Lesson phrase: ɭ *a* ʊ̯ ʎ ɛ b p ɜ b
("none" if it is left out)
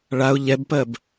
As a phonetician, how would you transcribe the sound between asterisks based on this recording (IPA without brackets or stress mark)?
a